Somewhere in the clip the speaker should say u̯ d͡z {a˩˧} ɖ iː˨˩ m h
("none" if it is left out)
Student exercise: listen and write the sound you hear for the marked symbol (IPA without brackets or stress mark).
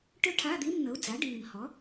a˩˥